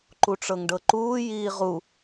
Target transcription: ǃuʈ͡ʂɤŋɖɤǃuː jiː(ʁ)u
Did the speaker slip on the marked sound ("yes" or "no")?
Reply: no